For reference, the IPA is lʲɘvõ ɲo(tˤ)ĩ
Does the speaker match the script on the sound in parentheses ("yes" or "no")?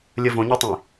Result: yes